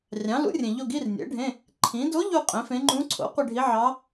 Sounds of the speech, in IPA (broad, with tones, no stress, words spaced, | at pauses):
rʲɑ̃˩˥ lṵ˩˥rʲẽ˩ ʎo˦˨ɡi˧˥˧rnʲḛ˩˥ɖʱẽ˧˥˧ | ǃʰĩ˩˥ do˧˥ ʎu˦˨ qʼẽ˩˥fẽ˧˥ ŋ͡ǃũ˧˥ǀʰo̰˩˥ qʷe˦˨ɖʱi˧˥ʕɑ˧˥